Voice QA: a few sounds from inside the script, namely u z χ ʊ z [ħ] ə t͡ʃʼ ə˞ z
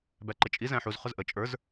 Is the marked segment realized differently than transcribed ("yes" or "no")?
yes